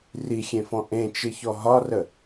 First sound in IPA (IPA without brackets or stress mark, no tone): r